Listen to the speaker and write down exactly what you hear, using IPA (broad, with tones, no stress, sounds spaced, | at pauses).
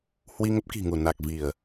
h w i˧ ŋ ə˦˥ p̚ k i̤˨˩ ŋ u˧˩ n a˨˩ k̚ v i˧˩˨ ə̯